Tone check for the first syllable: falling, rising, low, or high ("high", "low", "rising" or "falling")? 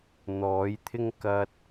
rising